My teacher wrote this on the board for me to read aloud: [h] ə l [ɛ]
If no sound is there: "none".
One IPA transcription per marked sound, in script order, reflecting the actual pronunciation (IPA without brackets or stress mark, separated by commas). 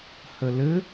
h, ɘ